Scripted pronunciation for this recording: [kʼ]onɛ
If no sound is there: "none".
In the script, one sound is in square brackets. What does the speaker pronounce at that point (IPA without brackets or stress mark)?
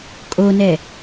kʼ